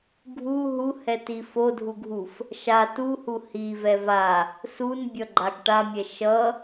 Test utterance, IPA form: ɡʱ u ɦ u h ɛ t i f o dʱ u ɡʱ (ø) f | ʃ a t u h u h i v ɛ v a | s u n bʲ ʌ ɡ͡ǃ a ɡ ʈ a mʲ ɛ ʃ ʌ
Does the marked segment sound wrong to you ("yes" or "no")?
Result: yes